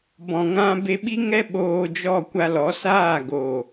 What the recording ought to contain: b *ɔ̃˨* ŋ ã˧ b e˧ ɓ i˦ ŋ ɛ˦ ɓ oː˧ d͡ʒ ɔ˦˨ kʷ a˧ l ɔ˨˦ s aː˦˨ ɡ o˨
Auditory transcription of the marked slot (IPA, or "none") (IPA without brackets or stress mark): ɔ̃˨